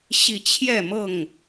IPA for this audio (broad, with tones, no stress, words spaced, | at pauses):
ɕi˥˨ t͡ɕʰjɛ˥˨mɤ˥˨ŋ